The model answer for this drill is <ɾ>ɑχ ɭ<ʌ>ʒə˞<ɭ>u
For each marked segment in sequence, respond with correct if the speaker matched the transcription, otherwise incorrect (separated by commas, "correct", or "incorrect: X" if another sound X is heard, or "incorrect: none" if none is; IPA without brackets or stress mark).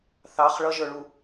incorrect: θ, correct, correct